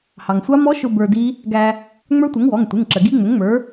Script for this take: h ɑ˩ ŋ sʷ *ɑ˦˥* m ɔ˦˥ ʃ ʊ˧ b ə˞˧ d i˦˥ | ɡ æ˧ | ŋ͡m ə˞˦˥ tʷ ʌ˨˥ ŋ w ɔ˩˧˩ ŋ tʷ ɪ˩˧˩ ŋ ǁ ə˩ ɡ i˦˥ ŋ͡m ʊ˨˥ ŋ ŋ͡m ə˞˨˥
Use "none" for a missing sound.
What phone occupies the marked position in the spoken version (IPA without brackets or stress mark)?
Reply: ɑ˦˥